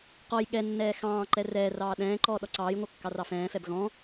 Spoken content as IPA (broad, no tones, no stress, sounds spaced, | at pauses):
q ɔ j ɠ ɛ nː ɛː x ɑ̃ː ǃ ɛ r ɛː r ɑː ɗ ɛ̃ː ǃ ɔː ɗ ɔ ǀ ɑː j ŋʷ ɑ kː ɑ r ɑ f ɛ̃ː f ɛ b ɣ ɔ̃